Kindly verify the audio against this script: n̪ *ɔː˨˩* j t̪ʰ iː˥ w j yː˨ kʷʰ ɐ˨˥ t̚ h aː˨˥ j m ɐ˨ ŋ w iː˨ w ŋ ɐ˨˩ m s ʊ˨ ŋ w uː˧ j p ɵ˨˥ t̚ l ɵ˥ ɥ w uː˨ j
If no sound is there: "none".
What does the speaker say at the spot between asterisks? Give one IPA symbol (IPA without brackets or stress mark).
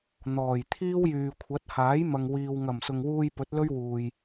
ɔː˨˩